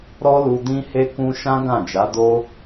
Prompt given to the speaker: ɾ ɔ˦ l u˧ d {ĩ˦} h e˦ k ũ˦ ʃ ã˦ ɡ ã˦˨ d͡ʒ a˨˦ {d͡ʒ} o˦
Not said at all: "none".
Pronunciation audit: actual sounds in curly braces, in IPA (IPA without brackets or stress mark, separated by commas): ĩ˦, d